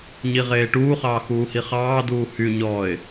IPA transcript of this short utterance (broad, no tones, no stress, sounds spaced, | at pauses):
ɲ i ʁ eː ʈ uː χ ɑː x uː h i χ ɑː d uː h y ɲ ɔː ɪ̯